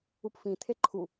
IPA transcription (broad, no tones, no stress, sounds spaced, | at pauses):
u p f ĩ t̪ʰ e ǃʰ u